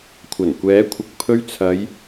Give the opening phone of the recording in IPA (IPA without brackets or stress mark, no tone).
kʷʰ